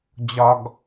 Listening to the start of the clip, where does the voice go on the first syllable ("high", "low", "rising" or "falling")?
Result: low